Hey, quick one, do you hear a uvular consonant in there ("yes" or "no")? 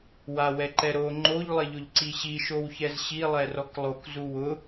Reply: no